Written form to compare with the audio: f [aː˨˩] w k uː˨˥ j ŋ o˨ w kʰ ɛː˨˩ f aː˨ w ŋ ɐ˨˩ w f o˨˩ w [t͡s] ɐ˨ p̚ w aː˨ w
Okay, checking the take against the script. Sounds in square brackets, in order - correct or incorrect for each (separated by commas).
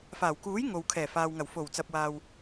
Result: correct, correct